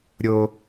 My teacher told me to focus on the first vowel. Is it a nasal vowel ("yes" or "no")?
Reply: no